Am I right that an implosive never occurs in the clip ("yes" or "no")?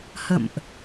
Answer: yes